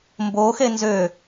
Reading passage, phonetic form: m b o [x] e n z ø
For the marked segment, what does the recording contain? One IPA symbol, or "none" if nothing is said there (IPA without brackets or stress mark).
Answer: x